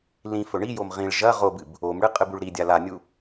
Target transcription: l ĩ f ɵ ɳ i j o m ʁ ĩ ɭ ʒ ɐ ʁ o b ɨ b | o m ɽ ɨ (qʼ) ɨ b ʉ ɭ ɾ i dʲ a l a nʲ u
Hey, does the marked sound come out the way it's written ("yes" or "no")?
yes